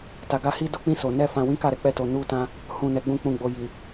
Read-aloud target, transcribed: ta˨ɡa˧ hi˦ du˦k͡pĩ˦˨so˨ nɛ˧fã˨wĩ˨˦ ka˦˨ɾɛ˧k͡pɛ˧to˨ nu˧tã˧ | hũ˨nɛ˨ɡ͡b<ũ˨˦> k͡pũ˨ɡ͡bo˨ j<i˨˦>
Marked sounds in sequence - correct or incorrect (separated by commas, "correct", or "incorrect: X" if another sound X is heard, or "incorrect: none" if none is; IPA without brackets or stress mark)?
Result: incorrect: ũ˧, incorrect: i˨